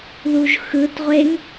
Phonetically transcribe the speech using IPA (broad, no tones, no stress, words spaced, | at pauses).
ðuʒxɯtʁʷeŋ